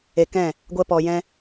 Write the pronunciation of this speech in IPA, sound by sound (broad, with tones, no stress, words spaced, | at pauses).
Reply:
e˧kɛ̃˦˨ | ɡʷɛ˦pɔ˧jɛ̃˦